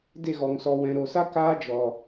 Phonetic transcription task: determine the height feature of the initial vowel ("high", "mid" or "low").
mid